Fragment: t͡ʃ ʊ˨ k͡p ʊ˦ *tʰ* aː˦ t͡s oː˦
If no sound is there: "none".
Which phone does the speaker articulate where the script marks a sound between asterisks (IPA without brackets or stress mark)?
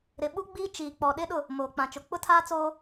tʰ